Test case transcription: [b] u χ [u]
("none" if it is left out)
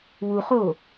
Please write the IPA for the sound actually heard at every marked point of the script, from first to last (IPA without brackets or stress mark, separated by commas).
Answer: w, o